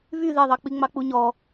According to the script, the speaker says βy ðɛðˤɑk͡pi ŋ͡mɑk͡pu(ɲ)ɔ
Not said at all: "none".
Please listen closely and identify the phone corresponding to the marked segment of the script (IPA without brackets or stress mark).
ɲ